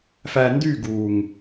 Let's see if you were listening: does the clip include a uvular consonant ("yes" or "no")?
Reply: no